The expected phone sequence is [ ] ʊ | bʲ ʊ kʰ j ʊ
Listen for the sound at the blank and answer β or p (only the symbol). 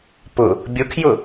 p